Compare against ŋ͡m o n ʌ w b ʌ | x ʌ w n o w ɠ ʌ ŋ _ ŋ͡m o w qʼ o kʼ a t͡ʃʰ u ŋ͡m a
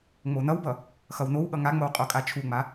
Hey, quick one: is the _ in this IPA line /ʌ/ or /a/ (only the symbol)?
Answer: a